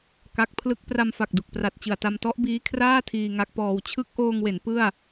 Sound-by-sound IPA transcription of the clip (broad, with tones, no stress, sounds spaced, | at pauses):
k a˦˥ k̚ pʰ l ɯ˥˩ k̚ p r a˧ m f a˨˩ k̚ d u˨˩ k̚ p r a˨˩ t̚ t͡ɕ ɯ˨˩ a̯ t a˧ m t ɔ˦˥ ʔ b iː˦˥ kʰ r aː˥˩ tʰ iː˧ ŋ a˦˥ k̚ p ɔː˧ w t͡ɕʰ ɯ˦˥ k̚ ʔ oː˧ ŋ w e˩˦ n p ɯ˥˩ a̯